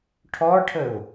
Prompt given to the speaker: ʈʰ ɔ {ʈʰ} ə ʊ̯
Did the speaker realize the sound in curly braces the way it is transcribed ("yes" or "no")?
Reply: yes